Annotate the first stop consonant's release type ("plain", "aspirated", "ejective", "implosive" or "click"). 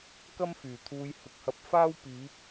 plain